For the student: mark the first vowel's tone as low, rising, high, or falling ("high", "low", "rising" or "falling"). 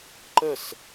falling